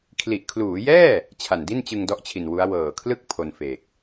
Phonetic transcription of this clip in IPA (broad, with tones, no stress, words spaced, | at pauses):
kʰli˨˩ʔkʰluː˩˦jɛː˥˩ | t͡ɕʰa˨˩ndi˥˩nt͡ɕɯ˧ŋ dɔ˦˥ʔt͡ɕʰi˨˩n wu˦˥a̯ wɤː˨˩kʰlɯ˥˩k̚ pʰo˧nfeː˨˩k̚